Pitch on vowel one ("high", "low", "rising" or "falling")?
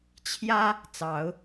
high